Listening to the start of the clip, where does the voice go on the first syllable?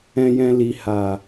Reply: low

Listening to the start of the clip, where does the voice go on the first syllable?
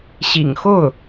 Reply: low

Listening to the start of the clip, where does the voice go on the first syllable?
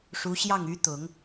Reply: rising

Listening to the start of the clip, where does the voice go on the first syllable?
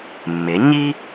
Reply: rising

